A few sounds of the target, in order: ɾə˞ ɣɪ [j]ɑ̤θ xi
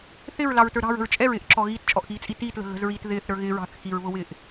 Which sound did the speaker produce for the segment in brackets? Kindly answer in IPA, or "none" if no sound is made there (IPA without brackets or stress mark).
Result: ɹ